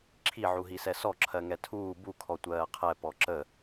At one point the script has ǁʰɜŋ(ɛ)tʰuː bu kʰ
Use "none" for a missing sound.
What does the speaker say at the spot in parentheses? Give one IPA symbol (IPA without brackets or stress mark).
ɛ